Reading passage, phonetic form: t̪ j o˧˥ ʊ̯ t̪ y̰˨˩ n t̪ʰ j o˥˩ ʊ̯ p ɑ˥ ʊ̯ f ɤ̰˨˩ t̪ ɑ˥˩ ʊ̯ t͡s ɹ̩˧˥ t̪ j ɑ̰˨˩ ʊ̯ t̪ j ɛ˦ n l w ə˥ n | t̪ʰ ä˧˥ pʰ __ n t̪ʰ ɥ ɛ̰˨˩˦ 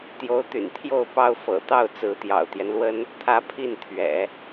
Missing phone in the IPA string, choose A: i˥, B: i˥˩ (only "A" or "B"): B